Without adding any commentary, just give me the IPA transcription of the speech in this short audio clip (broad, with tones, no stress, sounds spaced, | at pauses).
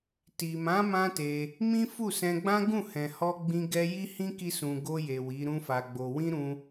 t i˨ m ã˨˦ m ã˦ t e˧ | m ĩ˦ f u˦˨ s ɛ̃˧ ɡ͡b ã˦ ɡ ũ˦˨ h ɛ̃˨ h ɔ˧ ɡ͡b ĩ˧ ɡ ɛ˦ j i˦ h ĩ˦ k i˧ s ũ˨ ɡ o˧ j e˨ w i˨˦ ɾ ũ˦ f a˧ ɡ͡b o˧ w ĩ˦ ɾ ũ˦